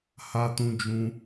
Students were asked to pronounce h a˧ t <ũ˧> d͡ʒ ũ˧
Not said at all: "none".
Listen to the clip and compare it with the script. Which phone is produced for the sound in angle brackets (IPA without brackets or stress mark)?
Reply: ũ˧